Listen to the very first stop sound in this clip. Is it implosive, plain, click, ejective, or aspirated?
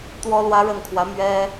plain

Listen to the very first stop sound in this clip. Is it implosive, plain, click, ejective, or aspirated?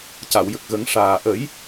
plain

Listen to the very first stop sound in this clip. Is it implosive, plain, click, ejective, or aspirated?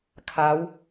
aspirated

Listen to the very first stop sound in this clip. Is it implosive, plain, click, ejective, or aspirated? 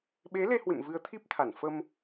implosive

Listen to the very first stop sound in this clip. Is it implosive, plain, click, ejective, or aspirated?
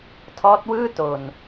aspirated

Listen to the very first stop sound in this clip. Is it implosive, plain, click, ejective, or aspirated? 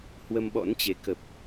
implosive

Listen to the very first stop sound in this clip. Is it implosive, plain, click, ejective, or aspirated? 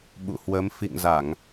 implosive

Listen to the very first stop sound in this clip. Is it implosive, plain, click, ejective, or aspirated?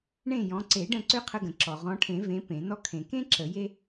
click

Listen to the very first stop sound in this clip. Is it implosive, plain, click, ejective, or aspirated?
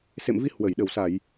implosive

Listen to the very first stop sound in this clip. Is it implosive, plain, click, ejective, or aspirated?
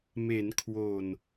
aspirated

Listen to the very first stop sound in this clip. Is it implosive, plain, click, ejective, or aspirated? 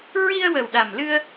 implosive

